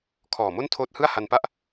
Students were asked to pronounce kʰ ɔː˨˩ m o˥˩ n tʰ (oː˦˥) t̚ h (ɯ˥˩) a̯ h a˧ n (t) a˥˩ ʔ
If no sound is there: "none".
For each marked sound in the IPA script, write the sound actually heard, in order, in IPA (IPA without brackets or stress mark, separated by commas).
oː˦˥, ɯ˥˩, p